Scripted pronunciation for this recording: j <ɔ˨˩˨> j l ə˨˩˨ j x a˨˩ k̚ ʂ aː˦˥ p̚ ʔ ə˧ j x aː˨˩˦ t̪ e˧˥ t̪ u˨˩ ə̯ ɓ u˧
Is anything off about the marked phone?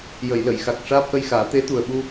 yes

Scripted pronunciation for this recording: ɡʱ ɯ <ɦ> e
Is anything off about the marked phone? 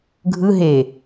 no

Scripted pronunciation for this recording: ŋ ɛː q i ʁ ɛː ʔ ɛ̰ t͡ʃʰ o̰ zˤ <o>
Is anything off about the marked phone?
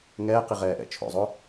no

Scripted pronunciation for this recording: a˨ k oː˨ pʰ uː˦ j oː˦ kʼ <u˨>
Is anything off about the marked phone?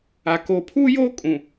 yes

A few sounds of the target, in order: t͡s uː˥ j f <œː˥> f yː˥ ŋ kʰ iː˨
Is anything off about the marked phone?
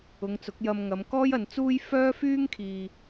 no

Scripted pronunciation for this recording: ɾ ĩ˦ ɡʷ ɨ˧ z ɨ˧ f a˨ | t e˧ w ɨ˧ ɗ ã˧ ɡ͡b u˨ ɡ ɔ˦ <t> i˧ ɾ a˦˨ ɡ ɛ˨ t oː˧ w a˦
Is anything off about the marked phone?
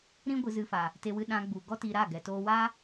no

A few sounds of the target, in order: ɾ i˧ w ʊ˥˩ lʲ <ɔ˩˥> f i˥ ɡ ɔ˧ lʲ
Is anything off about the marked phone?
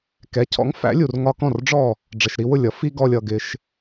yes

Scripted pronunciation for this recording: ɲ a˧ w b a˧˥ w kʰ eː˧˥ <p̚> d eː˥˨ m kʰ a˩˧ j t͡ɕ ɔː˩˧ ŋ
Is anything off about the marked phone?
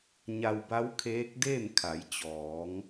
yes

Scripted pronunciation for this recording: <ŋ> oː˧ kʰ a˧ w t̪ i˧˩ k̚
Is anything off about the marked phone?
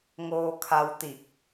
no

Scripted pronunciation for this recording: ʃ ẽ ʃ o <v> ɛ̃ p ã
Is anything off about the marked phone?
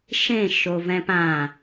no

